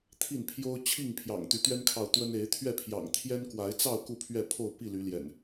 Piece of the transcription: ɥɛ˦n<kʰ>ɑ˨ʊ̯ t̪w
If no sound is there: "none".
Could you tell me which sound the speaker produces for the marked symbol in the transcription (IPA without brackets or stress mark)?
kʰ